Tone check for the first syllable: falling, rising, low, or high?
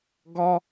high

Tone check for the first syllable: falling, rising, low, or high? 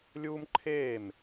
high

